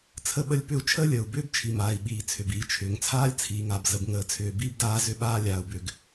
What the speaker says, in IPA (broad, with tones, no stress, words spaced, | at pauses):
t͡sʰə˥ɓə˥lʲ pʏ˥u̯ t͡ʃʰəː˥lʲəː˩u̯bʏː˥b t͡ʃʰi˩maː˩i̯ ɓiː˩ t͡sʰʏ˩biː˩t͡ʃʰʏː˩ŋt͡sʰaː˥lʲ t͡sʰiː˩ŋa˩b zə˩bŋəː˩t͡sʰʏː˩ biː˥bdaː˥ zʏ˥ɓaː˥lʲaː˩u̯bʏ˩ɡ